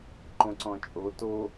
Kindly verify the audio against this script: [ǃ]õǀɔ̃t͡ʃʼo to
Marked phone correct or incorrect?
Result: correct